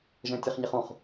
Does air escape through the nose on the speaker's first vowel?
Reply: yes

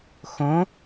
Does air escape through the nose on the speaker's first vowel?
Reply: yes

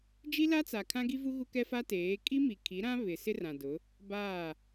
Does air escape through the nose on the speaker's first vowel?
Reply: no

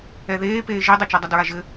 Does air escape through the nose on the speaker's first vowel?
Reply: no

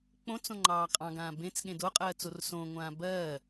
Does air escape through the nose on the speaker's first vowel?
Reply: yes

